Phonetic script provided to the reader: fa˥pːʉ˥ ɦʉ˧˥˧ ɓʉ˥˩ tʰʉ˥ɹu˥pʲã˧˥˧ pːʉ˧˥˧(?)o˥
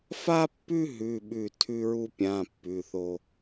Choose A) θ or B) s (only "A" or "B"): A